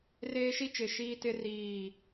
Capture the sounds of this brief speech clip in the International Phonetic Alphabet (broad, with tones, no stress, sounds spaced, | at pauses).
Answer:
r eː˦ ʃ i˦ t͡ʃ ɪ˨ ʃ iː˦ t ɪ˦ r iː˦˨